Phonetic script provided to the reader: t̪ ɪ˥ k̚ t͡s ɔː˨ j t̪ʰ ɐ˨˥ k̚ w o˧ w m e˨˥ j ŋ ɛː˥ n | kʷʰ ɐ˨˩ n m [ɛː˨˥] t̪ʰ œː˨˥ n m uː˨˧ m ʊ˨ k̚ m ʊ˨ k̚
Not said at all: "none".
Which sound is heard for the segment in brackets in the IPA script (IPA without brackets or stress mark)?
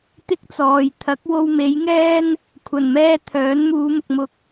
ɛː˧